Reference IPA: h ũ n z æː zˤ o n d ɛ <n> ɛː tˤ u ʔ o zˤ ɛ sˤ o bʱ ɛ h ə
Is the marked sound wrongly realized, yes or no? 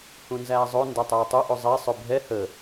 yes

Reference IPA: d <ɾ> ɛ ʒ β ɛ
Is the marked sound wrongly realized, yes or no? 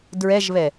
yes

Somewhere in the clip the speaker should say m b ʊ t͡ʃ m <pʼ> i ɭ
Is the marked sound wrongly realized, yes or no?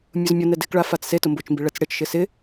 yes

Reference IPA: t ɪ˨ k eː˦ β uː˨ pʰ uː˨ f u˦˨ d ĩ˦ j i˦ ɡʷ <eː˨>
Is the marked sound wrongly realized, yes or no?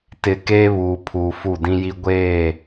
yes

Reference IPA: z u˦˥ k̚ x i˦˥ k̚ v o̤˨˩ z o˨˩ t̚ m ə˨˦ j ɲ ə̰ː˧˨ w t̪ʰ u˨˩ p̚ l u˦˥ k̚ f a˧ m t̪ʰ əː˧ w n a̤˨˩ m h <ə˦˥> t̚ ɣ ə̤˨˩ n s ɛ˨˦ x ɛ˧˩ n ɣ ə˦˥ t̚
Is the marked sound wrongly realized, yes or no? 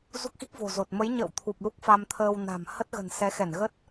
no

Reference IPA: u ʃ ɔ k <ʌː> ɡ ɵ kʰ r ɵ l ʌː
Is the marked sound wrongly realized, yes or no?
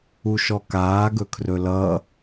yes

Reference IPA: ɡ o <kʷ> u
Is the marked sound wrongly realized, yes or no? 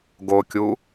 yes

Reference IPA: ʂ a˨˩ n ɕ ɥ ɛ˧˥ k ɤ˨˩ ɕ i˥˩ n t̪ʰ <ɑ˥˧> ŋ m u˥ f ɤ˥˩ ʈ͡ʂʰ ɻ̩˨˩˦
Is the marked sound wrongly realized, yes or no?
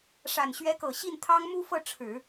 yes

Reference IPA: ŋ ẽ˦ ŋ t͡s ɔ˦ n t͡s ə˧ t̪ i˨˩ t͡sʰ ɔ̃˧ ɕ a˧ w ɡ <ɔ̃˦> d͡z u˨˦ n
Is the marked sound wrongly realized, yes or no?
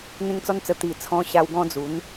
no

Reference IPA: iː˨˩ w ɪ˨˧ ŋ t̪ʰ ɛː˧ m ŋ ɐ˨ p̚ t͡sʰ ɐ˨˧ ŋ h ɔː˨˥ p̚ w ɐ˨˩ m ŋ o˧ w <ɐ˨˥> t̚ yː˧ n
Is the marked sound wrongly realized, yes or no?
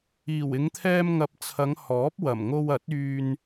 no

